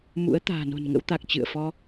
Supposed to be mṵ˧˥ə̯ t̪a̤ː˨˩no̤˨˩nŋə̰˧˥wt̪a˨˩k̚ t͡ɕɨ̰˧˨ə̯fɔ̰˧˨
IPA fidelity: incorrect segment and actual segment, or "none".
ɔ̰˧˨ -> ɔ˧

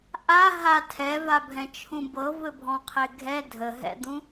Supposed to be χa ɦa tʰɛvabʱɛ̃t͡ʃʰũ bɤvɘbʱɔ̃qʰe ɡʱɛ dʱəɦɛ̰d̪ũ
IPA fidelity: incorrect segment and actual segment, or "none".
χ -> ʔ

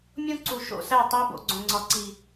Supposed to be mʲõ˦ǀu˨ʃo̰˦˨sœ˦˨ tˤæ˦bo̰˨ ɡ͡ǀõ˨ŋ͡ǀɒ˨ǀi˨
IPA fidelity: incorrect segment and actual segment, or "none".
œ˦˨ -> æ˦˨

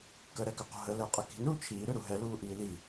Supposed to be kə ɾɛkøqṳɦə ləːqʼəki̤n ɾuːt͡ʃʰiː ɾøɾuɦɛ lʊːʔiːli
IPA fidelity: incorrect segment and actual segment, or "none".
ʊː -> uː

